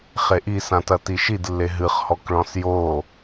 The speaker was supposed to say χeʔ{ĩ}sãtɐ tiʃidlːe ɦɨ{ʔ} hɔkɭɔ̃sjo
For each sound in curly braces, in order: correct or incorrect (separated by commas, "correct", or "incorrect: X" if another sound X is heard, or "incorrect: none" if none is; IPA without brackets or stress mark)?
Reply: incorrect: i, incorrect: χ